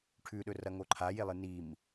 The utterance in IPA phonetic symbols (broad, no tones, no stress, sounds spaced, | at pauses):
ʈʰ ʉ ɗ ɵ r ɐ ŋ o ǃʰ a j e lˠ ɨ n i m